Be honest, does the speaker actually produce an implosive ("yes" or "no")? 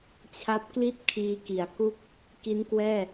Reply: no